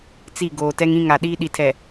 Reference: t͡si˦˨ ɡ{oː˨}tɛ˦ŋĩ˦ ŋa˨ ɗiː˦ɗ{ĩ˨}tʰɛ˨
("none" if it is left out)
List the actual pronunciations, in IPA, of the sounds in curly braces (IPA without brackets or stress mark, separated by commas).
oː˨, i˨